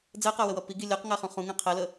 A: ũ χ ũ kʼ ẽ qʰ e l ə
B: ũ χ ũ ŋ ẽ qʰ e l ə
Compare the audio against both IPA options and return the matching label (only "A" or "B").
B